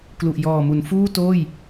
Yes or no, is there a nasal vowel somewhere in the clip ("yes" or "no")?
no